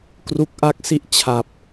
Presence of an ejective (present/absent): absent